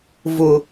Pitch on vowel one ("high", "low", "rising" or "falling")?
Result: low